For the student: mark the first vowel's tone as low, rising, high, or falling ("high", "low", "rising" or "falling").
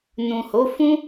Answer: low